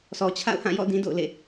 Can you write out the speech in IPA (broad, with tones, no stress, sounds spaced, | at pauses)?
sʰ ɔ˨ t͡ɕʰ a̰˦˨ ʊ̯ h ã˦˨ j ɔ̰˦˨ d ĩ˦ d o̰˦˨ ʊ̯ l ḛ˦˨